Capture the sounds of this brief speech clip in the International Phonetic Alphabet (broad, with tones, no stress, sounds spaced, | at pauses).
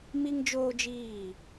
m i˦ ŋ d͡ʒ oː˦ d͡ʒ iː˦˨